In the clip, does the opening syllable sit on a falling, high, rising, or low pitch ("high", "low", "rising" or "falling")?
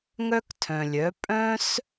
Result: high